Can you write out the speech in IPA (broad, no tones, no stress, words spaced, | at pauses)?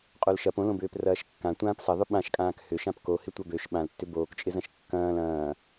qʼolʃɐp õlõbʏːp rɐːʃkːã tʷãːpsɐðˤʏ ɓãʃkʼãːk hʏʃãp kohɪ tʷɐbøʃ ɓãl tːʏboːkt͡ʃʼɪzɐ̃ʃ kːɐ̃ːl ɐ̃ː